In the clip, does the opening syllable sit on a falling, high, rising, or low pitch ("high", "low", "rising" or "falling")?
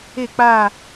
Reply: falling